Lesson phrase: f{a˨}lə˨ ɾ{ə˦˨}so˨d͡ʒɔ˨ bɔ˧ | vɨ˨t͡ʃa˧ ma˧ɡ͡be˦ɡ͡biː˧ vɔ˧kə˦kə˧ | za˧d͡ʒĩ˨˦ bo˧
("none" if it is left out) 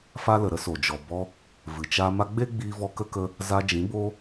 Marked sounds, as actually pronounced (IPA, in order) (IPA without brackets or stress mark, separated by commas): a˧, ə˧